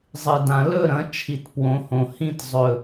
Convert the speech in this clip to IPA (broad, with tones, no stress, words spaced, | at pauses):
zˤɨ˩ dã˩lɵ˦˨ɾɐ̃˩˧ t͡ʃʰi˩tpwõ˩˧hõ˩ hĩ˦˨tzˤɵ˩